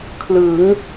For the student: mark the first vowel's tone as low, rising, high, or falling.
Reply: rising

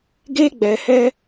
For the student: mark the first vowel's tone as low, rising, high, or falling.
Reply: high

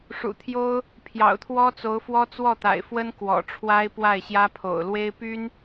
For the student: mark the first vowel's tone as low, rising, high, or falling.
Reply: low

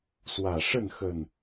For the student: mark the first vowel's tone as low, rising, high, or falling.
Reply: low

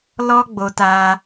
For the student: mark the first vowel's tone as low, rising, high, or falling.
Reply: high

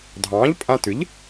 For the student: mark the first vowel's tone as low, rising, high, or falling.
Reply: rising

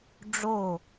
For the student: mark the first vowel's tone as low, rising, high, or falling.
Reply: falling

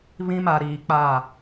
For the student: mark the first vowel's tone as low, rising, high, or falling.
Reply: high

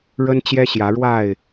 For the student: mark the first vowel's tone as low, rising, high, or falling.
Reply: high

